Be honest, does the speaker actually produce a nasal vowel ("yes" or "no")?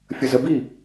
no